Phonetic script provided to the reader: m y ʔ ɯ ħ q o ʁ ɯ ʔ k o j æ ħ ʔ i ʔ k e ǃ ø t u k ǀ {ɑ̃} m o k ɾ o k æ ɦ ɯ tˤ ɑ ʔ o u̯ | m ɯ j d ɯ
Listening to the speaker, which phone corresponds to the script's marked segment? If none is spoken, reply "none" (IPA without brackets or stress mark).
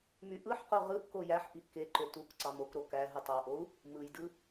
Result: ɑ